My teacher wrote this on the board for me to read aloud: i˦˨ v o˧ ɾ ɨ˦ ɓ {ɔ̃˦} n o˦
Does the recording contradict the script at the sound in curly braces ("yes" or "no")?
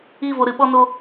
yes